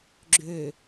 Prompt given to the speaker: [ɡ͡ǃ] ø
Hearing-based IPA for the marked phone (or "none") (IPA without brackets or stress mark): ɡ͡ǁ